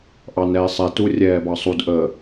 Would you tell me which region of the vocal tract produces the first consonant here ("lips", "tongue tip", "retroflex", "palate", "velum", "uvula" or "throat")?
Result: throat